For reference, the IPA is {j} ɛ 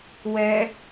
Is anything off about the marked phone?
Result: yes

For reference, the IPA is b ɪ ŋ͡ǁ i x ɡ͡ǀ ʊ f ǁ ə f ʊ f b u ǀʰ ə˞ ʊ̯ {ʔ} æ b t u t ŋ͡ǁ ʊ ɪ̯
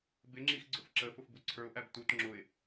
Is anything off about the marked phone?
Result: no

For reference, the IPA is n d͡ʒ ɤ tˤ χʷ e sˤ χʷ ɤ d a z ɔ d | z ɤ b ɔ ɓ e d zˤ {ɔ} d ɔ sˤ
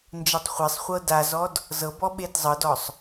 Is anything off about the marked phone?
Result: yes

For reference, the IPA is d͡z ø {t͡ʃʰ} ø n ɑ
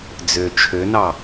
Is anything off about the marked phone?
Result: no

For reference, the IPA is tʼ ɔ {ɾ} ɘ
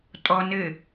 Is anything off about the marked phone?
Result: yes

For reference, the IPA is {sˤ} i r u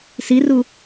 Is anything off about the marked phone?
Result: yes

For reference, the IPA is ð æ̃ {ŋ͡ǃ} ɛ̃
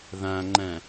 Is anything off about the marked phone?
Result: no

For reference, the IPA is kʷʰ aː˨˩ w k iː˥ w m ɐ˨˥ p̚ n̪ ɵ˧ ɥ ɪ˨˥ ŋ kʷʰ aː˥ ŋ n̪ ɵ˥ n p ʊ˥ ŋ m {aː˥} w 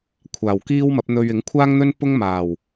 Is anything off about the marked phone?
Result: yes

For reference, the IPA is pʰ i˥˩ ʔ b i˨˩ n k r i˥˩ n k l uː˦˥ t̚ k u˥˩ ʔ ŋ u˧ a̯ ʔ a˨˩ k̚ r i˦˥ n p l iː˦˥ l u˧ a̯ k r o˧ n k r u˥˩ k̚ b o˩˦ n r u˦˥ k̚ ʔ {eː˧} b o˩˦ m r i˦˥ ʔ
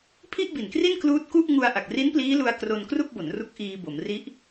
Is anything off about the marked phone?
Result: yes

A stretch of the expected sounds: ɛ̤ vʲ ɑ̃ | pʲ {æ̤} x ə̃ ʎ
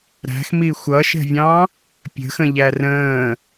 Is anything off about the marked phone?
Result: yes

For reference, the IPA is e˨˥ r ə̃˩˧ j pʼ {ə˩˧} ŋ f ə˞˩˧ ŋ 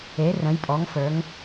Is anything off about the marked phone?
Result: yes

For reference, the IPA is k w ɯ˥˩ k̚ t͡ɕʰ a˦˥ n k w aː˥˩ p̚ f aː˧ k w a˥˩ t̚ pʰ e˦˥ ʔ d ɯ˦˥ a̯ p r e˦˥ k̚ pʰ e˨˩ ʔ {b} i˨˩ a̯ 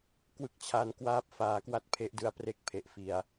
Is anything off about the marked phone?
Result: yes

